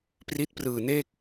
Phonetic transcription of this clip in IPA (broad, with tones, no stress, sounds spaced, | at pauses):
p r i˦˥ t̚ p r ɯː˧ n eː˥˩ k̚